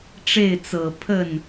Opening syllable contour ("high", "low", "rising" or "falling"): falling